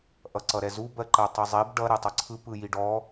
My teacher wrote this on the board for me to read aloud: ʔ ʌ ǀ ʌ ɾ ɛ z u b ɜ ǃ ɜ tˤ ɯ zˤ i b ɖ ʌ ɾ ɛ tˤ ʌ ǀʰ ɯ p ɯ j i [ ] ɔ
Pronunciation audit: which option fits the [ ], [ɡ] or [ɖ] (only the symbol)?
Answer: ɖ